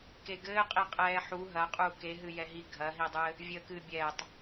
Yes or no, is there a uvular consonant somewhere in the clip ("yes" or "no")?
yes